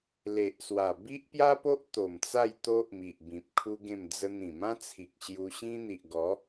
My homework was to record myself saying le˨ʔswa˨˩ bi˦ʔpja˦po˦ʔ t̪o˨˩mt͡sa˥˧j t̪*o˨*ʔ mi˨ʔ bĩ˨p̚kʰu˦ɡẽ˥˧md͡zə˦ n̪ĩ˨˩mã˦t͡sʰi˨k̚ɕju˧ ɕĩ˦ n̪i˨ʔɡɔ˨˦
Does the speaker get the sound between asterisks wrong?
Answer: yes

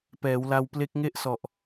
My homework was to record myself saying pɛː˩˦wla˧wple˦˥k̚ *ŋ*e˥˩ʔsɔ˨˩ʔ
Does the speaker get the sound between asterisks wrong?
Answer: no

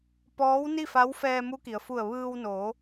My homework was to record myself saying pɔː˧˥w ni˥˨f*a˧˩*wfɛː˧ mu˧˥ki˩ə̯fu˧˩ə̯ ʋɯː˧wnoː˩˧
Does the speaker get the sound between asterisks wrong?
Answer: yes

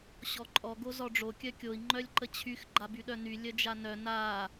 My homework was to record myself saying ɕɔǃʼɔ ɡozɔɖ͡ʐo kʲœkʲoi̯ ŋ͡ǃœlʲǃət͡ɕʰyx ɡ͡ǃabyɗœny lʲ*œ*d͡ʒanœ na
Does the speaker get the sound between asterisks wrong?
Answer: no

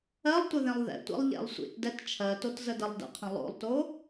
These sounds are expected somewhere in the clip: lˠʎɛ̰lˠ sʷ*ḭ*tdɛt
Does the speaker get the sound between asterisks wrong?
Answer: no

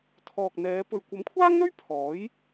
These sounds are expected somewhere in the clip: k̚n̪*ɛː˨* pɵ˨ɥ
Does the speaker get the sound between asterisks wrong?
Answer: yes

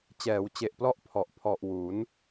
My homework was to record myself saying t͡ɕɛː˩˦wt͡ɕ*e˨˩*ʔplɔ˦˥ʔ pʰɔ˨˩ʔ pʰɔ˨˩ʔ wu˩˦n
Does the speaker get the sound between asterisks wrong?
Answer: no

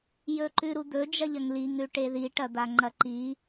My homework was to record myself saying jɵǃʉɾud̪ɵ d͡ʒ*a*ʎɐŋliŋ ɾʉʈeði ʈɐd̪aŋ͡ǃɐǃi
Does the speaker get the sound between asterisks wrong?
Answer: yes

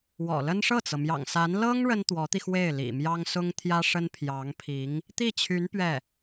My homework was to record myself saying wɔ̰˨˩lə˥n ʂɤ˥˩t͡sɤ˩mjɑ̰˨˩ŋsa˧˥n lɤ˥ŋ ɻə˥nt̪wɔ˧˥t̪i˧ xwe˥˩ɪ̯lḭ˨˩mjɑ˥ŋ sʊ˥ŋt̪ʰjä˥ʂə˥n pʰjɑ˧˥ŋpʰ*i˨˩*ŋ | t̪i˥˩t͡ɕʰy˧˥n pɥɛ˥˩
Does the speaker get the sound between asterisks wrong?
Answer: yes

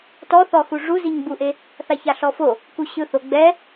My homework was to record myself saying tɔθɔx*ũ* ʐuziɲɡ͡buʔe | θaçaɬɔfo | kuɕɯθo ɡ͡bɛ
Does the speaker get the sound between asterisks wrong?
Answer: yes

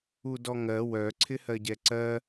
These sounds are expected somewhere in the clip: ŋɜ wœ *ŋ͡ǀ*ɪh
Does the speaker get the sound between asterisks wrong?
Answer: yes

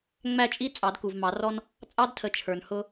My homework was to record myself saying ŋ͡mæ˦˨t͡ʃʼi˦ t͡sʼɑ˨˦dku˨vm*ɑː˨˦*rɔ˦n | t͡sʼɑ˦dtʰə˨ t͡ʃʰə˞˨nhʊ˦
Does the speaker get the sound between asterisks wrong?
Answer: yes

